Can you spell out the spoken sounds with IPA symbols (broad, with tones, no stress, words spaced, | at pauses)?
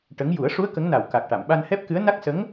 ʈə˧˥ŋ ju˨˩˦ə̯ʂu˧˥ə̯ kə˧˥ŋna˨˩w ka˨˩k̚ ʈa˨˩˨mɓa˧nhɛ˦˥p̚kɨ˧˥ə̯ na˦˥k̚sə˧˥ŋ